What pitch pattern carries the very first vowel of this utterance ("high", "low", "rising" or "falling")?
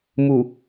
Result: low